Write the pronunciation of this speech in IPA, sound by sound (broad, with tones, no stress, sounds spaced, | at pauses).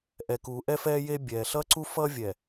ʔ ɛ˨ k uː˨ ʔ ɛ˦ f ɛː˦ j e˦ bʲ ɛː˨ ɬ ʌ˦ ǀ u˦ f ʌː˦ vʲ ɛ˨